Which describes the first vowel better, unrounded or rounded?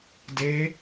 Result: unrounded